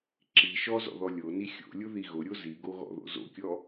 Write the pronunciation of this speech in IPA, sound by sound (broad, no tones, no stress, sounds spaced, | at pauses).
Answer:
ǁ i ʃ ɔ z ɔ̰ ð ɔ lʲ o n i xʲ o̰ lʲ ʊ ð i ɣ ʊ ɾʲ o z i ɡ o ɣ ɔ̰ ð o̰ z o̰ kʲ ɔ